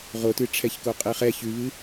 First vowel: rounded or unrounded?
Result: rounded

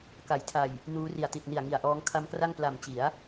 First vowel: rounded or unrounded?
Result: unrounded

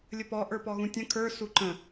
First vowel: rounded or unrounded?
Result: unrounded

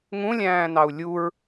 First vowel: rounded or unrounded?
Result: rounded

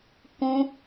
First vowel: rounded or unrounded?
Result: rounded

